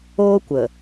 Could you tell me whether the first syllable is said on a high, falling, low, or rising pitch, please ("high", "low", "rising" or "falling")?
high